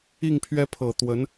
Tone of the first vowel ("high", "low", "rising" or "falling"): falling